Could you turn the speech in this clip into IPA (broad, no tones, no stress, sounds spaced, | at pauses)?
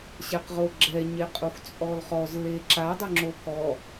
ɕ ɛ q ʁ o ɡ͡ǁ ɛ ɲ e qʼ u x t͡sʼ ɔ l χ ɔ z l e ǁ a dˤ ʊ ŋ͡ǁ o k ɔ